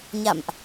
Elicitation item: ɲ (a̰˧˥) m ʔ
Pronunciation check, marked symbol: incorrect: a̰˧˨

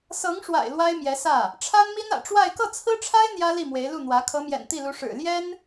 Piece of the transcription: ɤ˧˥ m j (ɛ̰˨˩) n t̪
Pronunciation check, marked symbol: correct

